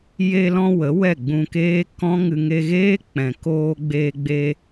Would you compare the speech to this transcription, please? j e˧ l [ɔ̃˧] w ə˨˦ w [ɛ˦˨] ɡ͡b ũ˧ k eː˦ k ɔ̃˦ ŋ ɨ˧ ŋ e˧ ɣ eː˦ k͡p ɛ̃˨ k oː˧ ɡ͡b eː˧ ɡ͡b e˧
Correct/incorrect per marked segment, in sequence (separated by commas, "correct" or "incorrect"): correct, correct